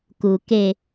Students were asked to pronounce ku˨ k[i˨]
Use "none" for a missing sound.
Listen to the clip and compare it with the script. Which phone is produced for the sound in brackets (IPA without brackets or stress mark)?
e˨